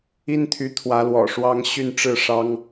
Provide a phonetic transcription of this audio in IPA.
i˦ n t̪ʰ y˨˦ t̪ʰ w ä˨˦ l w ɔ̰˨˩ ʂ w ɑ˨˦ ŋ ɕ y˥˨ n ʈ͡ʂ ɻ̩˥˨ ʂ ɑ˦ ŋ

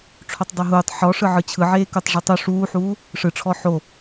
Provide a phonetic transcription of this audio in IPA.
ʈ͡ʂʰ o tˤ dˤ ɤ ɦ uː tˤ ħ ɔ ʂ ɯ ʕ ɯ t͡ɕʰ ɯ ʕ eː k u tˤ ʐ ɯ tˤ u ʂ uː ħ uː | ʂ ɯ ʈ͡ʂʰ ɔ ħ o

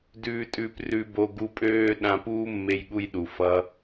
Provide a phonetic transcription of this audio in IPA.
d ʉː˧ tʼ ʉː˧ p r ʉ˦ b o˦ ɡ u˦ pʼ øː˦ ɗ ã˧ p uː˦ mː e˧ j ɠ u˧ j ɗ u˨ f ʌ˧

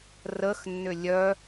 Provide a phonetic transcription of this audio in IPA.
r ə x nː ʏ lʲ œ

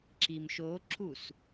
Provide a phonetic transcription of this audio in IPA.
ǁ i m ʃ o ǁ u s

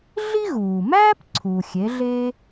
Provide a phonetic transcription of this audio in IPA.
ɮ i˥ ɣ uː˩ m æː˥ p ǀʰ u˩ xʲ e˩˥ ɮ e˥

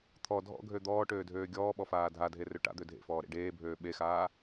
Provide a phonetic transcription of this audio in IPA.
t̪ʰ ɔ dʱ ɔ̰ ɡʱ ø d̪ ɔː ʈ øː dʱ øː ɡʲ ɔː ɓ ɔ f aː dʱ a dʱ e r ø ʈ a̰ d̪ ø dʱ ḛ f ɔː ɾ ḛ ɖ eː bʱ øː ɓ e x aː

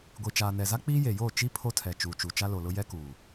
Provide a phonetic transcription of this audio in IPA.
ɡʷ i˨ t͡ʃ aː˨ n ɛ˨ z a˦ k͡p iː˦ j e˨ j oː˦˨ t͡ʃ i˦ pʰ o˦ tʰ ɛ˨ t͡ʃ uː˨ t͡ʃ u˨ t͡ʃ a˦ l o˨ l ʊ˦ j ɛ˦ k uː˨

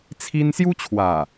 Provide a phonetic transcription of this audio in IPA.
t͡sʰ i˦ n s j u˦ t͡ɕʰ w a˨˩

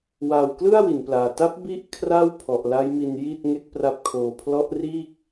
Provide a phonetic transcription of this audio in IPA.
w aː˨˩ w k l ɯ˥˩ a̯ w i˩˦ n p l aː˨˩ t a˦˥ p̚ b i˥˩ ʔ kʰ r a˥˩ w pʰ ɔ˨˩ ʔ l a˦˥ j m i˧ n j i˥˩ t̚ ŋ e˥˩ k̚ p r a˦˥ p̚ kʰ oː˧ pʰ l ɔ˦˥ ʔ r iː˥˩ k̚

